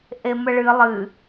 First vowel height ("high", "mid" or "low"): mid